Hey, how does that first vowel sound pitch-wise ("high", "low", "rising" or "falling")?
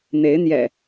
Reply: rising